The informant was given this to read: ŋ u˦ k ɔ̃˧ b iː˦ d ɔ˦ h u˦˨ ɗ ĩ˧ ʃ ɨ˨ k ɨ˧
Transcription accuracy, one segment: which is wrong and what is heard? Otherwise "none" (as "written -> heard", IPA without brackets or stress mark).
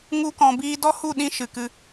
none